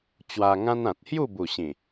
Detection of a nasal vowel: present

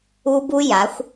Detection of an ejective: absent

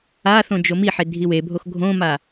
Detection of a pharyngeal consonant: present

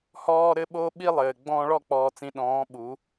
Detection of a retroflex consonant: present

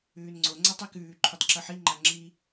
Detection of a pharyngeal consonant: present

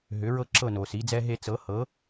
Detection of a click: present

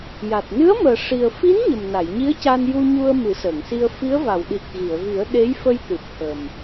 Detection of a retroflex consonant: present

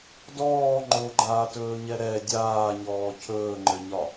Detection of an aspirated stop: present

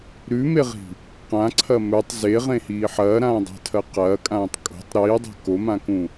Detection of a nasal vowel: present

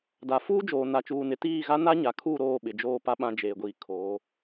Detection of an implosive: present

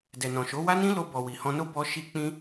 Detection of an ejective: absent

